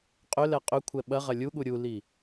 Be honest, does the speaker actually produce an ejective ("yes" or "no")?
yes